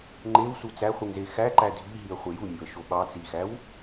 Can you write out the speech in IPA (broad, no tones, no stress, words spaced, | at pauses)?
ŋ͡ǃewsu t͡sæχʷiŋze xæǃæ dʱiɦiə̯χʷe jumʲoə̯ʃo ɓɑ t͡sixæw